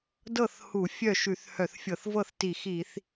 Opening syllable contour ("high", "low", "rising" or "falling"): falling